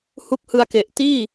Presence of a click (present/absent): absent